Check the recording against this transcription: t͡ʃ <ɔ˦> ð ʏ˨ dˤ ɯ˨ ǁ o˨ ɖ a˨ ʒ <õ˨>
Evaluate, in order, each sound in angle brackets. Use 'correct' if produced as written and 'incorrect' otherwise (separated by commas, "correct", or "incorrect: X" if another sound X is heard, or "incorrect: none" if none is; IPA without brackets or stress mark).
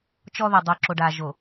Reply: correct, incorrect: o˨